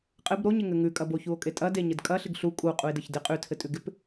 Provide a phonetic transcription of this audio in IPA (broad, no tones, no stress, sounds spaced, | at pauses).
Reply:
qʼ ɘ b ɾ o ɲ ɪ ŋ ɘ ŋ ʉ kʼ ɐ b o ç u o̯ kʼ e tʼ ɐ d e ɲ ɘ d kʼ ɐ ɬ ɪ ɡ ɬ u kʼ u qʼ u e̯ d ɘ ç d ɪ qʼ ʉ tʰ ɘ tʼ ʉ ɡ ɪ p